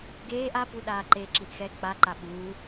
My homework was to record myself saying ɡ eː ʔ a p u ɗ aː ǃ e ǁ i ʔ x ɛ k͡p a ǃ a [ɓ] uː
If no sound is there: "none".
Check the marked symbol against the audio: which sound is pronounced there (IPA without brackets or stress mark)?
ɓ